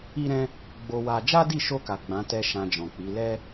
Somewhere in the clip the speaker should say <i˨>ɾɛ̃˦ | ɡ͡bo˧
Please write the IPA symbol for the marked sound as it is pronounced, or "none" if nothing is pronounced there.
i˦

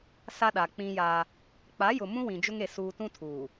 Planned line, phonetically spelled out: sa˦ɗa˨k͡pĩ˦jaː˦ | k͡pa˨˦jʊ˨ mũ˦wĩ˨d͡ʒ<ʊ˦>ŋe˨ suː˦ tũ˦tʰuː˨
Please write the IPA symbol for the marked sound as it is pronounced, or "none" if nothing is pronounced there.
ʊ˦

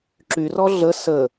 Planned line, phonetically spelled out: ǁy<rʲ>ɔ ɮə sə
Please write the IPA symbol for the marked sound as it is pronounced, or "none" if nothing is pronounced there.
r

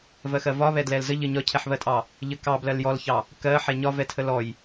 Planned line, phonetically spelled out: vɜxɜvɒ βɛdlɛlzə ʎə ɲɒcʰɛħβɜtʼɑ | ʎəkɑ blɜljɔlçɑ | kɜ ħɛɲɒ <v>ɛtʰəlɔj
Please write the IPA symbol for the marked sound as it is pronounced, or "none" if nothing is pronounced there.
v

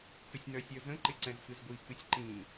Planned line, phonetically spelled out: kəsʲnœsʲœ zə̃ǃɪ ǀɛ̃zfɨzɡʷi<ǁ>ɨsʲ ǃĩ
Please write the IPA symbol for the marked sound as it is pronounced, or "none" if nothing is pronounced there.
k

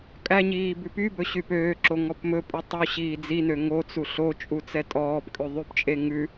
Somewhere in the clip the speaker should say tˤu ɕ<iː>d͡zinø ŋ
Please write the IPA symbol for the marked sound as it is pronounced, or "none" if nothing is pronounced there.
iː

